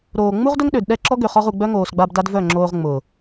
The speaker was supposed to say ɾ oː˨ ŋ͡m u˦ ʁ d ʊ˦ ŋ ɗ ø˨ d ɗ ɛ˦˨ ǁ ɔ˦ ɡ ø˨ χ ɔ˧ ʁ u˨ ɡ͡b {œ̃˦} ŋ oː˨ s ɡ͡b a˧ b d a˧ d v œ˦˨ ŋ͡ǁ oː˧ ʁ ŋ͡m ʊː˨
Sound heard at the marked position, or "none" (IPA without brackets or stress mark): œ˦